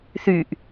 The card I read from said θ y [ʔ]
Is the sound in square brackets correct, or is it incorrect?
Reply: correct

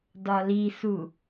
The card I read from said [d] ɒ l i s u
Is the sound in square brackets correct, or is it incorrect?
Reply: correct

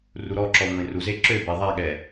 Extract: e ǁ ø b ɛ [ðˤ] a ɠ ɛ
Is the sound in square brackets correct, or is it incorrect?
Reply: correct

